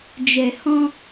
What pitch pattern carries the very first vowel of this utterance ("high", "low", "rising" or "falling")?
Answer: low